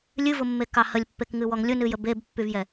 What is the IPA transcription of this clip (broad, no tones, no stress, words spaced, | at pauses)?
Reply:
lʲɨvʊmːekɑ həlʲpːekŋɨwɔŋ lʲʊnɨjə bebpːyvjɛ